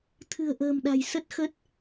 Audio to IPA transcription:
t̪ʰɨ̤˨˩ə̯ʔə̤ː˨˩mɗa̤˨˩j sə˦˥t̚xə˦˥t̚

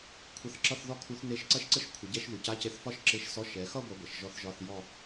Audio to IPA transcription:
kʷʰə˧˥˧θǁʌ˥˧θ ðɔ˥˧kʰu˧˥θ ne˧˥ʃǀɐ˥˧ʃǀə˥˧ʃ kʷʰə˩˧ɟɛ˧˥˧ʃ ðu˩˧ca˧˥˧ce˧˥θ fɒ˥˧ʃǁe˧˥˧ʃsɔ˧˥˧ ʃɛ˩˧xʌ˥˧ ɡʷʌ˧˥ɡʷɐ˩˧ʃ ʒɔ˧˥θʒɒ˧˥˧θ jɔ˥˧

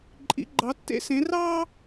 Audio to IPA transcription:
ǃʼḭ˩˧ɡ͡ǃɑ˩˧tːḛ˧ sẽ˩˧rɑː˥

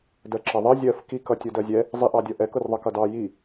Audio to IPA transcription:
dɜǁʌðˤɜ zʲɜf kik ʌtʲʊdɜzʲɛ | zˤiʔɑdʲʌʔɛk ʊrðˤʌkʌdɑ ji

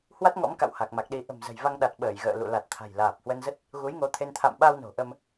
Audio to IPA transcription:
hwa˦˥t̚ŋɔ̰˧˥mka̰˧˨w ha˨˩k̚ma˨˩k̚ɗi˨˦ ʔə̤˨˩mzə̤˨˩jva˧ŋɗa˨˩t̚ ɓəː˧˩jɣə̰ː˧˨ lṵ˧˨la˨˩t̚ t̪ʰa̤˨˩jlaː˨˩p̚hwə˧nzə˦˥t̚ | ɣu˨˦j ŋo˨˦t̪ʰe˧n t̪ʰa̰˧˨mɓa˧w no̤˨˩ʔə˧m

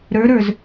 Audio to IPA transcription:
ɾə˞ɾə˞z

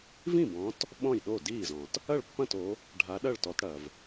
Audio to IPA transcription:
vĩ˥˩bɔ̃˨˦t | ɓɔ̃˥˩jɗo˥˩diː˥˩zɔ̃˩t | ɐ˥˩ɭpːɐ̃˥˩to˨˦ | ɖʱa˨˦ ɗɐ˥˩ɭtɔ˨˦t ɽɐ˩v

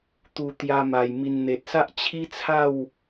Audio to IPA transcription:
t̪u˨˩ t̪ja˧ma˨˩j mi˨˩nn̪e˨t̚sa˦ʔ t͡ɕʰi˦t͡sʰa˥˧w

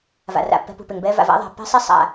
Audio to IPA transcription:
va̰˨ra̰˨pːɛ̤˧pṳ˨p ɪ˨ŋbɛ˧va̰˨v a̰˦ðˤa̤˨pːɛ̤˦sˤi˦ sˤa̰˧

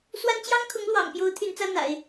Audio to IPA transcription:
swa˥n t͡ɕjɑ˥ŋkʰʊ˧˥ŋlwɑ̰˨˩ŋpjo˧˥ʊ̯ t̪ʰy˧˥nt͡sä˥ n̪a̰˨˩˦ɪ̯

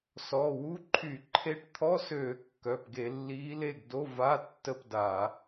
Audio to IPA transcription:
sɔ˩˧˩wu˧˥˧ǃʰy˧˩˧ ǃʰe˧˥ʈt̪ʰɔ˧˥˧søː˧˩˧ kːœ˩˧˩pɡe˧˩˧lːiː˧˥le˥˨ɡ do˧˥˧va˧˥˧ tːə˥˨pda˧˩˧

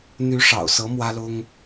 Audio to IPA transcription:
n̪y˧˥ʂɑ̰˨˩ʊ̯sɤ˧˥ mwä˥lʊ˥ŋ

